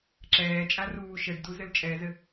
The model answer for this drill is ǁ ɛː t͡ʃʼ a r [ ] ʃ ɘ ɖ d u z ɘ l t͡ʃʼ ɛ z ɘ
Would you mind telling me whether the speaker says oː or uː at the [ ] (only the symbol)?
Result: uː